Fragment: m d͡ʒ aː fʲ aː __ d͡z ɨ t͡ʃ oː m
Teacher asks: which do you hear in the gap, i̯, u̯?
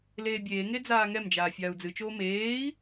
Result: u̯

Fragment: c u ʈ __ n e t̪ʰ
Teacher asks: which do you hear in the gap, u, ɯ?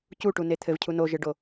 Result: u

